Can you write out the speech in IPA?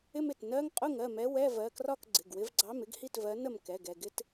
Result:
ɪ˥ m ɪ˧˩ t n ɜ˧˥˧ ŋ qʼ ʊ˥˨ ŋ ɜ˥˨ m ɛ˨˥ w ɛ˧˥˧ v ɜ˩˧˩ k r ɒ˥˨ k ɡ͡ǀ ɪ˩˧˩ ɡ w ɪ˨˥ v ɡ͡ǀ ɑ˧˥˧ m ɪ˥ ɡ h i˥˨ t v ɜ˨˥ n ə˥˨ m k ɛ˩˧˩ ɡ ɛ˧˩ ɡ ɪ˥ t

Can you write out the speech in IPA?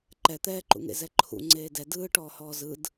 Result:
ǃ ɛ t̪ ɛː ǃ ṵ ŋ ḛ z ɛ ǃʰ ṵ ŋ͡ǀ eː d ɛ d ɯː ʈ ɔː h ɔː z ɯ d

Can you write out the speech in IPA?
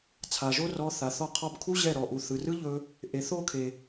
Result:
t͡sʰ a˨ ʒ o˦ r ɔ˧ θ a˨ θ ɔ˦˨ qʰ ɔ˦ b kʰ u˦ ʑ ɛ˦˨ ɾ ɔ˨ ʔ u˨ θ ɯ˨ r ɯ˦ ʎ ɵ˧ | ʔ e˨ θ o˦˨ kʰ e˨

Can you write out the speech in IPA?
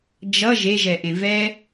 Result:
d͡ʒ ʌ ʒ e ʒ ɛ ʔ ẽ v ɛ

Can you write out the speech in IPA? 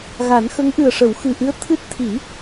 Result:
ɣ a˨˩˦ n x ə˧˥ ŋ ʔ ɨ˨˩ ə̯ ʂ ə˨˩˦ w x ɨ˨˩ ʔ ɨ˧˥ ə̯ t̪ʰ ɨ˦˥ t̚ t̪ʰ i˨˩˦

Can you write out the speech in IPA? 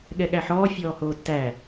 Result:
ɠ ɛ ɠ æ ħ ɔː fʲ ɔː h oː tː æ

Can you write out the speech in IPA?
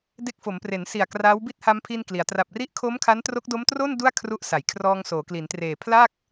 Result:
d e˦˥ k̚ f o˩˦ m p r e˩˦ n s i˨˩ a̯ k r aː˦˥ w b i˥˩ t̚ h a˧ m pʰ i˧ n k l i˩˦ a̯ t r a˨˩ p̚ r i˥˩ ʔ kʰ o˦˥ m kʰ a˦˥ n t r o˦˥ k̚ d o˦˥ m t r o˥˩ n d u˥˩ a̯ kʰ r u˦˥ ʔ s a˩˦ j kʰ r ɔː˧ ŋ s oː˩˦ k l i˩˦ n t r eː˨˩ pʰ l a˥˩ k̚

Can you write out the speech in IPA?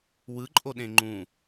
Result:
w ɯ ǃʼ o ɗ ẽ ŋ͡ǃ ũ

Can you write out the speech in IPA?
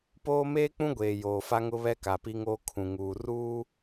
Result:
p oː˦ m eː˦ k͡p ũ˦ ɡʷ eː˨ j oː˨ f a˦ ŋ ʊ˦ β ɛ˦ k a˨ p i˦ ŋ oː˦ kʰ ũ˨ ŋ uː˨ r uː˦

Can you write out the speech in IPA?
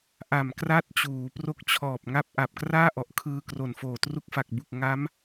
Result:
ʔ a˨˩ m k r a˥˩ t̚ t͡ɕ uː˩˦ p r o˦˥ k̚ t͡ɕʰ ɔː˨˩ p̚ ŋ a˥˩ p̚ ʔ a˨˩ p̚ k r aː˥˩ ʔ ɔ˨˩ ʔ kʰ ɯː˧ k r o˨˩ n f oː˨˩ t r u˦˥ k̚ f a˨˩ k̚ b u˨˩ k̚ ŋ a˦˥ m

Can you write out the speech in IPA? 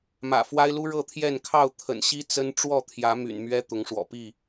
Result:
m ä̰˨˩ f w a˦ ɪ̯ l u˦ ɻ ɤ˥˨ t̪ʰ j ɛ˥˨ n kʰ ɑ˥˨ ʊ̯ t̪ʰ ə̰˨˩ n ɕ i˦ t͡s ə˦ n ʈ͡ʂ w ɔ˥˨ t̪ʰ j ä˨˦ m y̰˨˩ n m ɥ ɛ˦ t̪ ʊ˨˦ ŋ ʂ w ɔ̰˨˩ p i˥˨

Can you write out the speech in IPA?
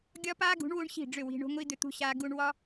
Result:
ɡʲ ɒ˦ p aː˦ ɡ ṳ˨˦ ɳ w u˦ ɳ ɕ i̤˦˨ ɖ͡ʐ ʏ˦˨ w i̤˧ ɳ o̤˧ ŋʷ i˧ d̪ ʏ˧ t̪ ṳ˧ ɕ aː˧ ɡ u˧ ɳ w ɒ˦

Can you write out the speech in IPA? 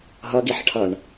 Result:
ɦ ʌ ɡ i ħ ʈʰ ʌ ɳ

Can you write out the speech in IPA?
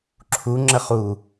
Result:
ǁʰ u ŋ͡ǁ ə χ u

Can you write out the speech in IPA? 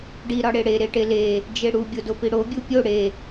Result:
ɖ i ɾ ɒ ɽ e ɽ e ɾ e ʈ e l e | d͡ʒ e ɽ u bʲ o d o p i ɽ o bʲ u pʲ o ɽ e

